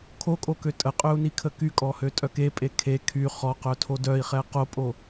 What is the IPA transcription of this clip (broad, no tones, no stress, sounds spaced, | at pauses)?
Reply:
kʰ o kʼ o k ø tʼ ə qʼ ø u̯ n i kʰ ə k y kʼ ɔ h ø tʼ œ k e pʼ e kʰ e kʰ y χ ɔ q œ tʰ o d œ i̯ χ ɛ q o pʼ o